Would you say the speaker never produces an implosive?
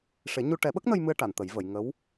no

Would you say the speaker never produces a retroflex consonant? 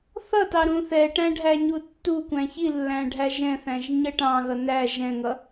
no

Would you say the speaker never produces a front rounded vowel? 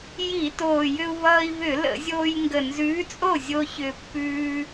no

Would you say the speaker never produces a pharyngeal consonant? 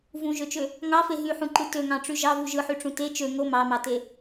no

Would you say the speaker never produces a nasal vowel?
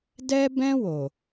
no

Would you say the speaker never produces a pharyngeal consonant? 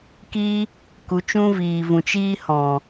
yes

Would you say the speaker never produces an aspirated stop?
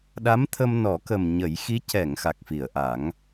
no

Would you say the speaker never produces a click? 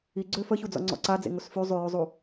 no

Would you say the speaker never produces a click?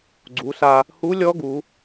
no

